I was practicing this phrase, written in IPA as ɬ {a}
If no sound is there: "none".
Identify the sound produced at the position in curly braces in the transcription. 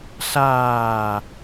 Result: aː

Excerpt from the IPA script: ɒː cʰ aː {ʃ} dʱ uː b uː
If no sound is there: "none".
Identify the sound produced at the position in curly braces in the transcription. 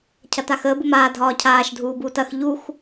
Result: ʃ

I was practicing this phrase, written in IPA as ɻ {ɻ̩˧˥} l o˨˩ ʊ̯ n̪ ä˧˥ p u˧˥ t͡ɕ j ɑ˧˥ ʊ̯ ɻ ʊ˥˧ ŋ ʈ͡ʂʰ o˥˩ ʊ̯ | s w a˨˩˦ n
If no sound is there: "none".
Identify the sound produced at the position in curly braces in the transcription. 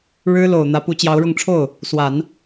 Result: ɻ̩˥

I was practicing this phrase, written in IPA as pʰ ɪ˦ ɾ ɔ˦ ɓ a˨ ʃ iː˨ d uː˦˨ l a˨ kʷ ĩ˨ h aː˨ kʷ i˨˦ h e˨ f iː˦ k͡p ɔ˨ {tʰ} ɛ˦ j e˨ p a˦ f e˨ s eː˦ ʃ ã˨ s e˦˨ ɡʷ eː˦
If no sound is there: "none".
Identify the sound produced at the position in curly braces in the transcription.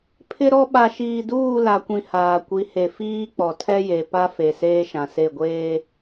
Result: tʰ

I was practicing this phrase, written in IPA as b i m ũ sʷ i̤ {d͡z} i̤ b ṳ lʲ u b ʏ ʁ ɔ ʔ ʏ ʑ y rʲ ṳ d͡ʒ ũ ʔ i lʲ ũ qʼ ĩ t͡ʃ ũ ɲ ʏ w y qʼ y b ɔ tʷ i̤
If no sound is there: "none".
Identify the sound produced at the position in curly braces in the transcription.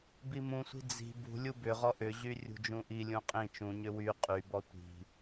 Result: d͡z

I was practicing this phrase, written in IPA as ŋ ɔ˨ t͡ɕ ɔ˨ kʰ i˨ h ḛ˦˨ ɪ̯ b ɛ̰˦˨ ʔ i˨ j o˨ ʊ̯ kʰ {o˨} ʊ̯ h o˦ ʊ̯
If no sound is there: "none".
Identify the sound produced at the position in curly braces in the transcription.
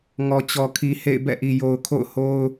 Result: o̰˦˨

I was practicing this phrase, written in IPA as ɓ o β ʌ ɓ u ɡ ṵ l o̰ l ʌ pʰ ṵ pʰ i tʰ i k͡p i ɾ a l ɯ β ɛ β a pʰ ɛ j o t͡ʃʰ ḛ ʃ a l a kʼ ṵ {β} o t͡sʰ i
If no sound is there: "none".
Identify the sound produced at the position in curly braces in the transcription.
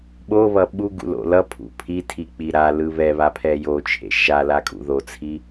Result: ð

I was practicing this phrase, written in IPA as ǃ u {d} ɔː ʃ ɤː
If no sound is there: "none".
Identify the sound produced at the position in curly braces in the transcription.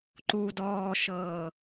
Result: d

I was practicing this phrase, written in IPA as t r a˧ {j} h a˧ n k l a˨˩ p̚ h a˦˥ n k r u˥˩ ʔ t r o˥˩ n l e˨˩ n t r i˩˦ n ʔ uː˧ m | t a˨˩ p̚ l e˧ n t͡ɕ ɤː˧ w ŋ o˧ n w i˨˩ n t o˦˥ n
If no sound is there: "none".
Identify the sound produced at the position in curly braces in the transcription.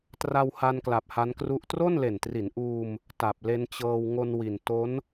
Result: w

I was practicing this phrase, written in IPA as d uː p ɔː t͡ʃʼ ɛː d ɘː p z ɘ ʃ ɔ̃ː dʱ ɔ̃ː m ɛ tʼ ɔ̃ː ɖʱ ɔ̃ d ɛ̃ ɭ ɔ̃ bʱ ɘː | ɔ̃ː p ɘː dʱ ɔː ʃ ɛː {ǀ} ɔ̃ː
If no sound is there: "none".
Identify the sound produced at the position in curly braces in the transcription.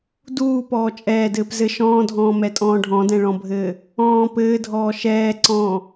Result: ǀ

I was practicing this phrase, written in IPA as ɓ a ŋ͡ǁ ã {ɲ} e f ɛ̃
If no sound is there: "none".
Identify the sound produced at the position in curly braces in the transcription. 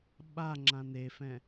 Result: n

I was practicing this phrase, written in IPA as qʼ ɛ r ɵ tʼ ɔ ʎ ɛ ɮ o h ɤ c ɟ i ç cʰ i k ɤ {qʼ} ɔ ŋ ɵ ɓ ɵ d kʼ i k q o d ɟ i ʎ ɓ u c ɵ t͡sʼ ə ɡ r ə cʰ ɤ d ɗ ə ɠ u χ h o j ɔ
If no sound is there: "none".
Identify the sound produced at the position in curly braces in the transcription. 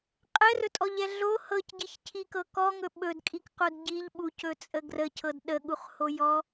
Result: k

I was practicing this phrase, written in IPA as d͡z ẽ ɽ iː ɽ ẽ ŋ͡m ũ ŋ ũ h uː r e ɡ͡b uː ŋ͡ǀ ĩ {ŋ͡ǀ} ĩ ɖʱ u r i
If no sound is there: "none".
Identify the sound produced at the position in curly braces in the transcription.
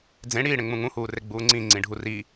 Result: ŋ͡ǀ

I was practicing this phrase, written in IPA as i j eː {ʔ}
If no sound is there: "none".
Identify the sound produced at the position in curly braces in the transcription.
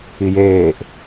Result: ʔ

